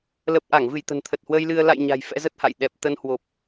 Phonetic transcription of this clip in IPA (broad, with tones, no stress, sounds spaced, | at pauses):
l ə˨˩ p̚ ʔ a˧˩ ŋ v ɨ˧˩ j t̪ ə̤˨˩ n t̪ʰ ə˨˩ t̚ h w əː˧ j l ɨ˧ ə̯ l a̰˧˨ j ɲ a̤˨˩ j f ɛ̰˧˥ z ə˦˥ t̚ h a̰˧˨ j ɗ ɛ˨˩ p̚ t̪ ə˧ n h w o˨˩ p̚